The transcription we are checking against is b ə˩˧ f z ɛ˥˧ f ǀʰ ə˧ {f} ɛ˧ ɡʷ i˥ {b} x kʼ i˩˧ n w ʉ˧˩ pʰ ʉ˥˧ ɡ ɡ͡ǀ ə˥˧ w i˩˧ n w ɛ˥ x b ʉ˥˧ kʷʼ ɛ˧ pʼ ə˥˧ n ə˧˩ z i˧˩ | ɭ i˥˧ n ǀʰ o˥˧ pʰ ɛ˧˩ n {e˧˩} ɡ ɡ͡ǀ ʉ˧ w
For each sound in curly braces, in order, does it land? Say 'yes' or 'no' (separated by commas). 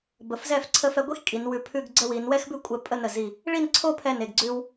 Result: yes, no, yes